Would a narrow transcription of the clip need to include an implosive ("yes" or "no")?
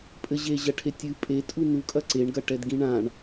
no